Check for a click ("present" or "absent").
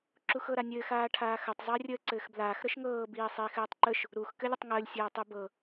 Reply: present